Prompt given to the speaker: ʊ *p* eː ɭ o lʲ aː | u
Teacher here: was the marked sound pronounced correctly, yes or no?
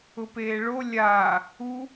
yes